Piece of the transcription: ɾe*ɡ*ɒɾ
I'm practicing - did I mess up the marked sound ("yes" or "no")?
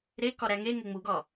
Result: yes